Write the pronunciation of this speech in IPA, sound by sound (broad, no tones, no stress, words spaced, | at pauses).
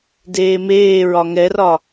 deːmeːɹɒ ŋɛrɒ